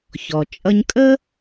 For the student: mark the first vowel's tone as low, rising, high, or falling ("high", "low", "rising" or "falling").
low